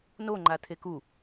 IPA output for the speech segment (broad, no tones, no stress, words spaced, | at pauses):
no ŋ͡ǃat̪ʰeku